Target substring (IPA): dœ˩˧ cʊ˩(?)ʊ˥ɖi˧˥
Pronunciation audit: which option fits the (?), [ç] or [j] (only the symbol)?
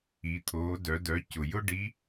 j